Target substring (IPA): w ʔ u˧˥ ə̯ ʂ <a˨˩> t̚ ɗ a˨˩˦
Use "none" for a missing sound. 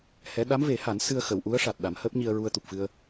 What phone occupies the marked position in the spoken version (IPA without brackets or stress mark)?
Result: a˨˩